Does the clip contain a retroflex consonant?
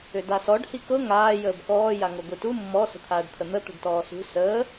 yes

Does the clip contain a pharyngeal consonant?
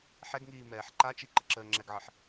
yes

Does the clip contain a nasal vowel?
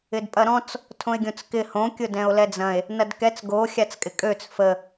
yes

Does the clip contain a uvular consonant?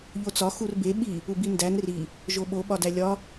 no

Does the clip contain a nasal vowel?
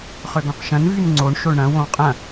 yes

